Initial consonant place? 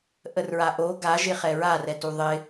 glottal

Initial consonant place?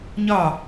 palatal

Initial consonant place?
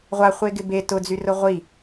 uvular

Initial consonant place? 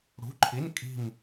retroflex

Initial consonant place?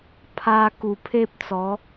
labial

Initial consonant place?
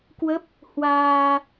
velar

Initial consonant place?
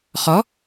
uvular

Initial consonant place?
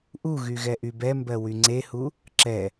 glottal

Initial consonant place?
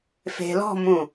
labial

